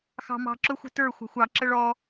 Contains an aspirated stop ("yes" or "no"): no